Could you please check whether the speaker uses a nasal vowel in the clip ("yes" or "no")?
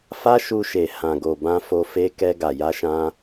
yes